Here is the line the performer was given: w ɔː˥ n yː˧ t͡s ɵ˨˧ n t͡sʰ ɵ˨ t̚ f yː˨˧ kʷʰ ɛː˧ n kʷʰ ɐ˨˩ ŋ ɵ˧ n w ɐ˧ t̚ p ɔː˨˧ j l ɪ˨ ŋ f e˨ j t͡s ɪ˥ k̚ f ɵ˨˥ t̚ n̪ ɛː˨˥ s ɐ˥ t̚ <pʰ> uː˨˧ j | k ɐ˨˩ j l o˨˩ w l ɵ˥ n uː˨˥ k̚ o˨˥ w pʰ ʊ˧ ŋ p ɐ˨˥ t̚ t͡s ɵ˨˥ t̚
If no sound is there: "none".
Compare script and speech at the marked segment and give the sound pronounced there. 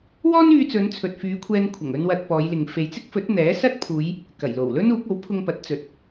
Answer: pʰ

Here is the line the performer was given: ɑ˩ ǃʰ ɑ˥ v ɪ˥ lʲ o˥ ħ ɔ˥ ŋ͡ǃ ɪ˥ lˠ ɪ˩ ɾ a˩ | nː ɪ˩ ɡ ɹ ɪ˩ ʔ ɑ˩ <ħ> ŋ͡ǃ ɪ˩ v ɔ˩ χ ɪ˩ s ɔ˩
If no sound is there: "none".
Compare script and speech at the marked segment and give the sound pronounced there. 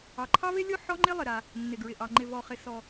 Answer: none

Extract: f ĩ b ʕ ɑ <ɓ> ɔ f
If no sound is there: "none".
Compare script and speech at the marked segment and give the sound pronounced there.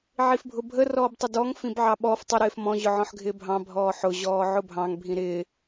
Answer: ɓ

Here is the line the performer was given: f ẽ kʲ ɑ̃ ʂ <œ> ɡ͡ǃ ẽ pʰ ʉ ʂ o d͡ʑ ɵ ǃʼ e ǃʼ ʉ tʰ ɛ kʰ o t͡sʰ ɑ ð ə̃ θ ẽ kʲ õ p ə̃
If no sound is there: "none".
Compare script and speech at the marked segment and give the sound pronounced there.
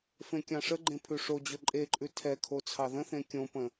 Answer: ə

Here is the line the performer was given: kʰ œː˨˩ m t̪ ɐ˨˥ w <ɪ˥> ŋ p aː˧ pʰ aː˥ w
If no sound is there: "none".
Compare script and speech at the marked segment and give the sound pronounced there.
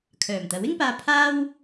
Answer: ɪ˥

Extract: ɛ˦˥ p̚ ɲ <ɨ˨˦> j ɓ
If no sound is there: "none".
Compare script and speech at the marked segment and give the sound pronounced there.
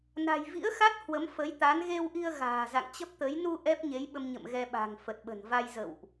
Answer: e˨˦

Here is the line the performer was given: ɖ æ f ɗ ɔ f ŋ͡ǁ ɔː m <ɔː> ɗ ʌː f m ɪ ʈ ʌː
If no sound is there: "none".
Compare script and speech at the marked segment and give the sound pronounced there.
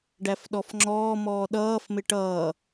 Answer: ɔː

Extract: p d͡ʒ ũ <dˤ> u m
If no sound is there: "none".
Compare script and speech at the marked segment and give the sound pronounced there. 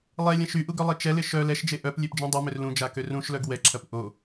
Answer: dˤ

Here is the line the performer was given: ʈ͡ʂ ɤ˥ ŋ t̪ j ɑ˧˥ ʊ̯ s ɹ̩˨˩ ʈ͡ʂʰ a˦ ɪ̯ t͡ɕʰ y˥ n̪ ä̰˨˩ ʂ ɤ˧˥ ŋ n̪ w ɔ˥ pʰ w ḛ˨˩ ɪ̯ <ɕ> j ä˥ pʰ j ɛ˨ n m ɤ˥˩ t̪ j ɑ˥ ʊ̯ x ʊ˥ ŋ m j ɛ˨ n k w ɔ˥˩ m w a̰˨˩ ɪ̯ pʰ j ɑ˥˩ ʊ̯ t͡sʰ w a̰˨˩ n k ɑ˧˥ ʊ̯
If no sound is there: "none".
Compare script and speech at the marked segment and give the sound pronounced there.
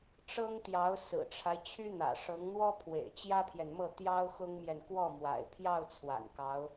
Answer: t͡ɕ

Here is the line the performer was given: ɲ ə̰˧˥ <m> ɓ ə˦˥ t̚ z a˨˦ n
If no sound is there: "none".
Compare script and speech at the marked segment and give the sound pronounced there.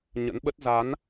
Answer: n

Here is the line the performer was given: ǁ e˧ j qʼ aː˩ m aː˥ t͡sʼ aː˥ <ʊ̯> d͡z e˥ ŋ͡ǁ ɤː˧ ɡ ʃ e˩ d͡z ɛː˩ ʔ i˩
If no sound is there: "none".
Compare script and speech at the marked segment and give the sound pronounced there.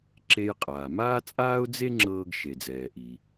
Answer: ʊ̯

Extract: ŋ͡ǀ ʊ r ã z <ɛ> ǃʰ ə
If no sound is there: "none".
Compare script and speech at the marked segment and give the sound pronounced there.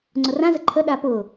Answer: ə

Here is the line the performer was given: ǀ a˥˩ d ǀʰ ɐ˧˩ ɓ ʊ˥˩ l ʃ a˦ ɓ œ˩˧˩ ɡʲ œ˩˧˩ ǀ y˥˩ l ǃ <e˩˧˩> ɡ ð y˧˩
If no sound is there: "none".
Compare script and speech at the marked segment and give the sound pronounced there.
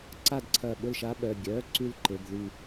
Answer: e˩˧˩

